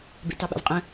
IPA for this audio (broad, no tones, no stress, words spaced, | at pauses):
bḛtɑɓa̰vqʼə̃